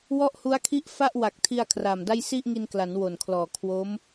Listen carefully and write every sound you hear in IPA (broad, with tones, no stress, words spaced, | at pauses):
wɔ˥˩ʔhu˦˥a̯kʰi˥˩ʔ fa˥˩ʔwa˨˩k̚tʰi˧a̯ kʰraː˨˩mda˥˩j si˥˩ʔŋi˧nkla˩˦n wo˨˩nkʰlɔː˨˩kʰwo˦˥m